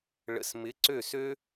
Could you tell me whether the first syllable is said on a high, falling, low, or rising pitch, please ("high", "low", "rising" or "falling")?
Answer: low